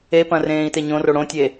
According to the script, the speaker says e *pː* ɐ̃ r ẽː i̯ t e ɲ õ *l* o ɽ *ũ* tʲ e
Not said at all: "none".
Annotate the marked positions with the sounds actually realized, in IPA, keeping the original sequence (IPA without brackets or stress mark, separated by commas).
p, r, õ